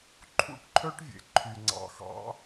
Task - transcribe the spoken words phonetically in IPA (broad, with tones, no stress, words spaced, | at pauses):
ǃʰṵ˦ʈǃʰœ˦ʈvʲḛ˨ ǃʰy˨ŋ͡ǀɑ̰˨xɑ̰˨˦